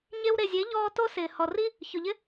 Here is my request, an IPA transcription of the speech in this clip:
ɲ e˧ w ɾ e˨ zʲ e˨˦ ʎ ɔː˧ t o˦ s ɪː˨ h ɔ˨ r i˦ | ç ʊ˨ ʎ ɪ˦

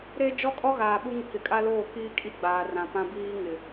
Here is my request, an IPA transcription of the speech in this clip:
ɾ e˦ d͡ʒ ɔ˦ kʼ ɔ˦ ɣ aː˨ ɓ u˦ ŋ ɪ˦ k ɪ˨˦ kʼ a˦ l oː˦˨ k iː˦ kʼ i˦ ɡ͡b aː˨ r ã˨ p ã˦ b iː˦ ŋ ɪ˨

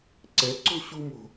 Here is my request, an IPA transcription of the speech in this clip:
ǀ ɛ˨˦ ǀ o̤˦ ɕ u˧ m o̤˨

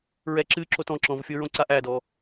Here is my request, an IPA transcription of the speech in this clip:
ɹ ɛ ǁ ɨ ǁ o t ɔ̃ ǁ ɔ̃ v fʲ o ɹ õ ǀ a ʔ æ d ɔ

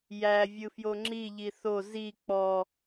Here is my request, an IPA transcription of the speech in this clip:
j æ vʲ ɯ f j o ŋ͡ǁ i ʎ i θ o z i k͡p ɔ

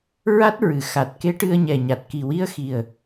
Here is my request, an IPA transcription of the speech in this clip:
ɹ a˦˥ t̚ ɹ ɨ˨˩ x a˨˩ t̚ k e˧˥ ʈ ɨ˧ ə̯ ɲ ɛ˨˩ ɲ a˨˩ t̚ k i˨˩ w i˧ ə̯ x i˨˩ ə̯

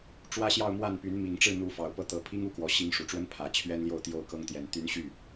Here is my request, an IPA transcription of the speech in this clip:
ʈ͡ʂ w ä˥ ɕ j ɑ˥˧ ʊ̯ m w a˥˩ n p y˧˥ n m i˨˩ ŋ ʈ͡ʂ ɻ̩˥˩ n̪ u˧˥ f ɑ˨˩ ʊ̯ p ɤ˥˩ t̪ ɤ˧˥ pʰ i˥ ŋ u˥ k w ɔ˨˩ ɕ i˥ ŋ ʂ u˨˩ ʈ͡ʂ w ə˥ n pʰ ä˨˩ t͡ɕʰ ɥ ɛ˥ n l j o˥˧ ʊ̯ t̪ j o˥˩ ʊ̯ k ɤ˥ ŋ t̪ j ɛ˨˩ n t̪ y˧˥ n ɕ y˥˩

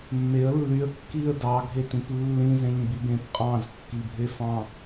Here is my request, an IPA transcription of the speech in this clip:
mː e ə̯ lː y ə̯ kː i ə̯ d ɑ ɡʱ e t ĩ p lː ĩ z ẽ ɲ b i b ẽ p qʼ ɑ̃ z kː i bʱ e f ɑ̃

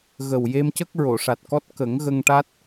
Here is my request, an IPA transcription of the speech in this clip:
ɣ ə˨˩ w j e˧ m c ə˦˥ k̚ ɹ o˨˩˨ ʂ a˨˩ t̚ k ɔ˦˥ t̚ k ə˨˩˦ ŋ ɣ ə˧ ŋ ʈ a˦˥ t̚

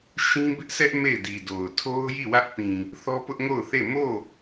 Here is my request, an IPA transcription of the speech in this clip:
ʃ ĩ˦ b ɪ˦ ʔ sʰ ɛ˦ ʔ m e˦˨ ɪ̯ d i˨ d o˨ ʊ̯ tʰ o˦ ʊ̯ j i˦˨ w ä˦ ʔ p ĩ˨ | θ ɔ˦ p ʊ˦ ʔ ŋ o˦˨ ʊ̯ θ e˦˨ m o˦˨

